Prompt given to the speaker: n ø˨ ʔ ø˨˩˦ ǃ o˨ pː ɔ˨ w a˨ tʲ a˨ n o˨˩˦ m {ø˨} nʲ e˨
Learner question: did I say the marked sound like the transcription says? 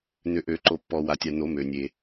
yes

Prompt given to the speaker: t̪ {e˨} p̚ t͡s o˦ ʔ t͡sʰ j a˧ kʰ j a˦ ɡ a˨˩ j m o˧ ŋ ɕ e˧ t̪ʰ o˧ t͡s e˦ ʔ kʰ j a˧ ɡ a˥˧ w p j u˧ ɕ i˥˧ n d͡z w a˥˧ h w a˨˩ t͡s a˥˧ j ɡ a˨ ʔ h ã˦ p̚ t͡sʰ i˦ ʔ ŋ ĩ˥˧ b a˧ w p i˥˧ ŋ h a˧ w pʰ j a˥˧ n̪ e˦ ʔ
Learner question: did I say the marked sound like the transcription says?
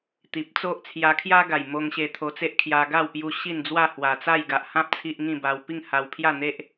no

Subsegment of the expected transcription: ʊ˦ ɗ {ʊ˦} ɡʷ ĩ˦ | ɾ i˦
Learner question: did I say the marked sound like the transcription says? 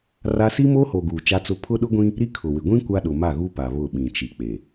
yes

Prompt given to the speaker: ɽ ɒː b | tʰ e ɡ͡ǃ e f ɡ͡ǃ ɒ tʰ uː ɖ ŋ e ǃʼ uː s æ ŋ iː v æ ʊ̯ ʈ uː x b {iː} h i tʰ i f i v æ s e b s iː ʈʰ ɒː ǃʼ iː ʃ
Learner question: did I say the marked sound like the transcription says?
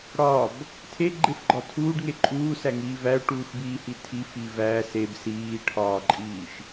yes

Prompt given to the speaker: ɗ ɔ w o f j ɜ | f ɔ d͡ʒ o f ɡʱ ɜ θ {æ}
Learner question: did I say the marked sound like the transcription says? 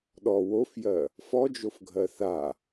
no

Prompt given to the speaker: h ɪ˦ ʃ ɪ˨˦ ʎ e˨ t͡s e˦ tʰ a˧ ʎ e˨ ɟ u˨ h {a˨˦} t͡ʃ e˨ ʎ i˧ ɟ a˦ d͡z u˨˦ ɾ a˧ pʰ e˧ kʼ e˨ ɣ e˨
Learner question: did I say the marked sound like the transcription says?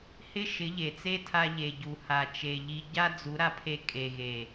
no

